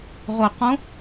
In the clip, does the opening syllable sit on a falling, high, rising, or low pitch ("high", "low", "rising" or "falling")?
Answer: low